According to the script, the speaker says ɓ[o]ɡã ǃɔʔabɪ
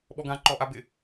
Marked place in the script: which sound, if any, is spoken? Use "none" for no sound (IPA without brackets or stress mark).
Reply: ɔ